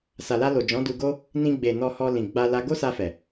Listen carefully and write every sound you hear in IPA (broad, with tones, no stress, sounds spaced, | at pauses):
s a˨ l a˧ l o˨ d͡ʒ ɔ̃˨˦ d u˧ ɡ o˦ | n ĩ˧ ɡ͡b e˨ n ɔ˧ h ɔ˧ l ĩ˨ ɡ͡b a˧ l a˧ ɡ o˦ s a˧ f ɛ˨